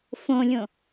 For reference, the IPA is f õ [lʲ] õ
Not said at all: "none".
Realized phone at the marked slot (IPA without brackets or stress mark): lʲ